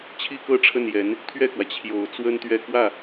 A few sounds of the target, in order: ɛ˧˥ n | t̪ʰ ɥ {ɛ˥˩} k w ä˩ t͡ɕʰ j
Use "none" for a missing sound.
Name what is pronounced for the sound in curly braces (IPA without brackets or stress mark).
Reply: ɛ˥˩